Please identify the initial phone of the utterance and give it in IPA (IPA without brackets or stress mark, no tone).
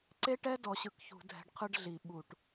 ǀ